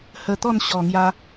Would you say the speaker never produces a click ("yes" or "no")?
yes